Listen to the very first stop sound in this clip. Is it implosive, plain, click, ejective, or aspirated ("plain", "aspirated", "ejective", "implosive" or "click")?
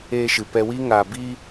plain